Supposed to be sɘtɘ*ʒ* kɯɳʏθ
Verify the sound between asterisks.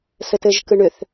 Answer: correct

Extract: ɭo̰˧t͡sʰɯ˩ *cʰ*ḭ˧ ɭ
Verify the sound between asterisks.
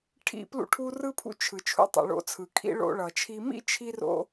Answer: incorrect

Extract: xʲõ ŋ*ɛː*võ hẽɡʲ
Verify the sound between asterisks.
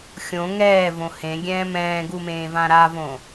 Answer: correct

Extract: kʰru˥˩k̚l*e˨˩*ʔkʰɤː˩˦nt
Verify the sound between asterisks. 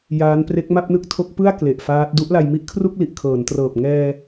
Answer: incorrect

